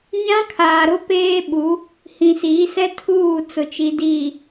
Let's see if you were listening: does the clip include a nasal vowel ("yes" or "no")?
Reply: yes